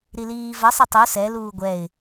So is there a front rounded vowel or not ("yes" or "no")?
no